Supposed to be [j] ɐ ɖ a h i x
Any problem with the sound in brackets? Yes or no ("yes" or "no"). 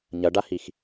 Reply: yes